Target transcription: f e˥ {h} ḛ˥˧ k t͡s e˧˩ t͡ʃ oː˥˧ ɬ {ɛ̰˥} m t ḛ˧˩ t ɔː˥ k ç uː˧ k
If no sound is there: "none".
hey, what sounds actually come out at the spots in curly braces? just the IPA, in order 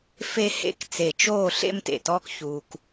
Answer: h, ḛ˥

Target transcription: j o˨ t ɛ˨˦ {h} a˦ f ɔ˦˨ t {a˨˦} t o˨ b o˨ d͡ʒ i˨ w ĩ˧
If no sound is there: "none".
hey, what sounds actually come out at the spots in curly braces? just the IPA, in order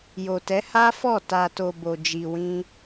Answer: h, a˨

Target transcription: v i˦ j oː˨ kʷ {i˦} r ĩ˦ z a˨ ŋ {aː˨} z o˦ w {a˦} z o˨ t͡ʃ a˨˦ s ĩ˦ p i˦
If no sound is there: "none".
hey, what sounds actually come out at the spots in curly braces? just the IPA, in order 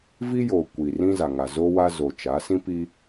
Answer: i˨, a˨, a˦

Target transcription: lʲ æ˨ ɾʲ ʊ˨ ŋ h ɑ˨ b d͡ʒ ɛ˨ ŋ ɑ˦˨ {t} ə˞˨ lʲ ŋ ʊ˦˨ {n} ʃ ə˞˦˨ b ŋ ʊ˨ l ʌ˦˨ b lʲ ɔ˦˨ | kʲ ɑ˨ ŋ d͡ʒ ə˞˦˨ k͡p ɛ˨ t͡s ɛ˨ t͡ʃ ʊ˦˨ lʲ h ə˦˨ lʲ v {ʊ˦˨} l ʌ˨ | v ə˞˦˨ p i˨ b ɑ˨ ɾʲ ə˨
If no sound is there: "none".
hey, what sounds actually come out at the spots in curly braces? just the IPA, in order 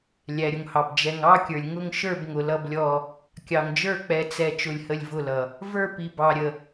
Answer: kʲ, ŋ, ʊ˦˨

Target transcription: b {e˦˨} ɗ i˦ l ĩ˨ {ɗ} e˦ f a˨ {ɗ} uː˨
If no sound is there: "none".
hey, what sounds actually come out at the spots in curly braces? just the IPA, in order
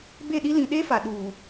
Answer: e˦˨, ɗ, ɗ

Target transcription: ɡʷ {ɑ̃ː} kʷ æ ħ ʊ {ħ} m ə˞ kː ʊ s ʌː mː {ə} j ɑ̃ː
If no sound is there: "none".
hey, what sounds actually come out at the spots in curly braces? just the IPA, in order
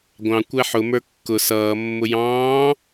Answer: ɑ̃, none, ʊ

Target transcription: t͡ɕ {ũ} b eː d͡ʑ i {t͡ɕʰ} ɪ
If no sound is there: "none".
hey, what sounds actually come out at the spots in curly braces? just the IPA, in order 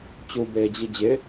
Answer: u, d͡ʑ

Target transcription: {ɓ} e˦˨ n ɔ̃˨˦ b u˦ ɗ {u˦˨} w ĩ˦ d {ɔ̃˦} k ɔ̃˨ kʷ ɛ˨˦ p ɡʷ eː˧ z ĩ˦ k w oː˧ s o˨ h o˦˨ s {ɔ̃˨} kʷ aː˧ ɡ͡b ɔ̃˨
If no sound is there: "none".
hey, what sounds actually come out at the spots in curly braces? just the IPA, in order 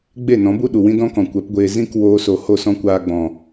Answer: ɡ͡b, u˨, ɔ̃˦, ɔ̃˦

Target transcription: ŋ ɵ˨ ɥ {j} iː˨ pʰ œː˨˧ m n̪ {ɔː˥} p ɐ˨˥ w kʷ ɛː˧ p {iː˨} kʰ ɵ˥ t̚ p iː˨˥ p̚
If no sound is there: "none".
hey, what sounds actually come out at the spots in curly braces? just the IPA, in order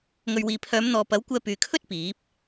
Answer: w, ɔː˨, yː˨

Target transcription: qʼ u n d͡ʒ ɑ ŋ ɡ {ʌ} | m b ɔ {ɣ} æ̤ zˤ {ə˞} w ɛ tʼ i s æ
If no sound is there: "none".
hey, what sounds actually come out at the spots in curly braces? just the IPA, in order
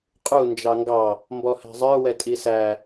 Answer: ɑ, h, ə˞

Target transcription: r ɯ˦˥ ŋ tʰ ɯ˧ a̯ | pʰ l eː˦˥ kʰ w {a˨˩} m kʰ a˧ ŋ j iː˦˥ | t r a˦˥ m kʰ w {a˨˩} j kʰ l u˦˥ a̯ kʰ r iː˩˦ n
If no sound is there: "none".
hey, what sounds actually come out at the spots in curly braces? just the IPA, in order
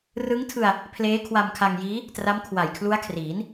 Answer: a˧, a˨˩

